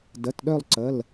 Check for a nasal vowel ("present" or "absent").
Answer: absent